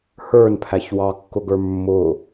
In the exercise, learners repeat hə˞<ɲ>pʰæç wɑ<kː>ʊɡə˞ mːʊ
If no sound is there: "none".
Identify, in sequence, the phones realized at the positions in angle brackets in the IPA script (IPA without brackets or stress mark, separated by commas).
n, kː